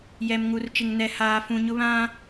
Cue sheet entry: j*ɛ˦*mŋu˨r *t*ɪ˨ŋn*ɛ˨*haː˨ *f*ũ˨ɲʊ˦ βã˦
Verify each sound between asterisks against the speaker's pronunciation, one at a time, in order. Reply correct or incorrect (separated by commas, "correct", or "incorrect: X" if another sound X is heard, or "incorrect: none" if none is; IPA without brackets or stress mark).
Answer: incorrect: ɛ˨, incorrect: t͡ʃ, correct, correct